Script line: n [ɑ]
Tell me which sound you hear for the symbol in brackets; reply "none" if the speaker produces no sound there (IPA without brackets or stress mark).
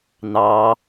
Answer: ɑ